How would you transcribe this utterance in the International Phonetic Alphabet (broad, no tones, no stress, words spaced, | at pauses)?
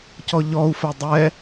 cɔʎɔu̯fɛ dˤɛ